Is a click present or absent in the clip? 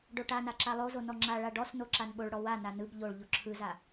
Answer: present